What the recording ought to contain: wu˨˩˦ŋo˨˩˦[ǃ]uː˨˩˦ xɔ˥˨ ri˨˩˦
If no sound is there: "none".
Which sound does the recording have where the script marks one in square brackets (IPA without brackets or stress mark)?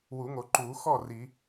ǃ